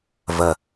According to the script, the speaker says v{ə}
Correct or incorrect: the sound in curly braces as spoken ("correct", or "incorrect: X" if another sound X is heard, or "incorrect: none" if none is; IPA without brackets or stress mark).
correct